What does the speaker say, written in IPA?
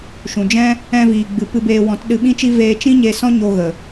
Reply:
ʃ ũ˨ d͡ʒ ɛ̃˦ | ɛ̃˧ v iː˨ ɡ͡b ɨ˨ p ɨ˧ b eː˧ w ɔ̃˨˦ t ɗ ɨ˧ ɓ ĩ˦ t͡ʃ i˦ v eː˧ t͡ʃ ĩ˦ ɲ e˧ s ɔ̃˦ ɲ o˧ ɣ ə˨

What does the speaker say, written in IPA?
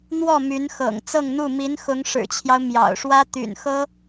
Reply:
n̪ w ɔ˥˩ m y˧˥ n x ɤ̰˨˩ ŋ t͡s ɤ˥˧ ŋ n̪ u˥˩ m i˧˥ n x ʊ˧˥ ŋ ʂ ɻ̩˨˩ t͡ɕʰ j ɑ˦ ʊ̯ m j ɑ̰˨˩ ʊ̯ ʂ w ä˥ t̪ y̰˨˩ n x ɤ˥

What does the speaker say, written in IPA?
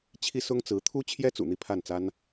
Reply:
t͡ɕʰ i˥ s ʊ˥ ŋ t͡s ɹ̩˧˥ t̪ʰ u˥ t͡ɕʰ j ɛ˥ t͡s ṵ˨˩ n̪ i˥˧ pʰ a˥˩ n t͡s a˥ n

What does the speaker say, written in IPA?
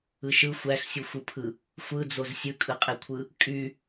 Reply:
ɯ ʃ ɯ xʷ æ x sʲ u xʷ ɯ pʰ ɯ | xʷ ɯ d͡z o z sʲ ɯ kʼ ɯ qʼ e kʷʰ ɯ | kʼ y

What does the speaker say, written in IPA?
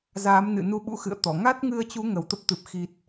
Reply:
z aː˨˦ m n ɨ̰˧˨ n u˧ ɓ ṵ˧˥ x ɨ̰˧˨ ə̯ t̪ ɔ˧˩ ŋ a˦˥ t̚ ŋ ɨ˧ ə̯ t͡ɕ u˨˦ ŋ ə˨˩ w t̪ ə˦˥ p̚ t̪ ɨ˨˩ p̚ x i˨˩ t̚

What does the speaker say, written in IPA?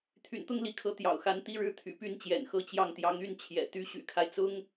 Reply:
t̪ʰ y̰˨˩ n t̪ ʊ˥ ŋ l i˧˥ kʰ ɤ˧˥ t̪ j ɑ̰˨˩ ʊ̯ x a˧˥ n t̪ i˥ ɻ ɻ̩˥ t̪ʰ y̰˨˩ p y˥ n t͡ɕ j ɛ̰˨˩ n x ɤ˥˧ t͡ɕ j ɑ˥˩ ŋ t̪ j ɑ˧˥ ŋ y˥ n t͡ɕʰ j ɛ̰˨˩ t̪ y˥ ɕ y̰˨˩ kʰ a˦ ɪ̯ t͡s ʊ˥ ŋ

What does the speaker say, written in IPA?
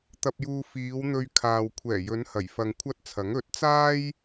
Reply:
t̪ ɐ˧ p̚ j uː˧ f iː˨˧ w n̪ ɵ˧ ɥ kʰ aː˨ w kʷʰ ɛː˨˩ j ɵ˨˧ n h ɐ˨˩ j f ɐ˧ ŋ kʷʰ ɐ˥ t̚ t͡sʰ ɐ˨˥ ŋ ɵ˨˥ t̚ t͡s aː˥ j

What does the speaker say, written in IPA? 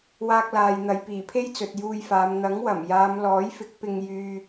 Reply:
w aː˧ k̚ l aː˨ j n̪ ɐ˨˧ j p iː˨˩ pʰ e˥ j t͡s ɵ˨ t̚ j uː˧ j f aː˨˧ m n̪ ɐ˨˥ ŋ w ɐ˨˩ m j aː˨˧ m l ɔː˨˥ j f ɪ˨˥ k̚ p ɪ˧ ŋ j yː˧

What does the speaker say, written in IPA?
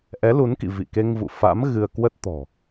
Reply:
ʔ ɛ˨˦ l u˨˦ n k ḭ˧˨ v ḭ˧˨ k e˧ ŋ v ṵ˧˨ f a̰˧˥ m ɣ ɨ˧ ə̯ k w ə˦˥ t̚ t̪ ɔ̤˨˩

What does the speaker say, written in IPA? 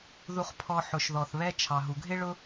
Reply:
ð u˨ χ pʰ ɔ˨ ħ ʊ˩ ʃ ð ɔ˩ θ β ɛ˦ t͡ʃʰ ɑ˩ ɦ u˩ ɡʱ ɪ˦ ɭ ʊ˦

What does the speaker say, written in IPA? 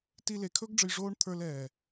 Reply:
t i˧ l e˨ kʰ ɵ˦ ɡ ɖ͡ʐ ɘ˧ j ʐ oː˦ ɳ t̪ʰ ə˞˧ l ɛː˨

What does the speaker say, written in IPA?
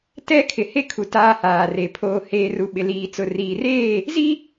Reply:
t ɛ˦ kʰ ɪ˨ h e˦ kʰ u˨ t aː˦ h aː˨ r e˨ pʰ oː˨ h eː˨ r u˨ ɓ ɪ˨ l iː˨ t͡s ʊ˨ r iː˨ r eː˦˨ | z i˦

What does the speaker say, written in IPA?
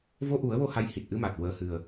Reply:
v o˧ ʔ u˨˩˦ ə̯ w o˧ h a˧˥ j h i˨˩ t̚ ʔ ɨ˧ m a˨˩ t̚ w əː˨˩ h ɨ˨˩ ə̯

